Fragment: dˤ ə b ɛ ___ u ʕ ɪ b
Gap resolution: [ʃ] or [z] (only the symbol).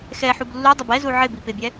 z